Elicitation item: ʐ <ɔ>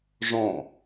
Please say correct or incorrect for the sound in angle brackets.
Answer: incorrect